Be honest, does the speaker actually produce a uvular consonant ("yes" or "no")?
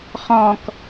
yes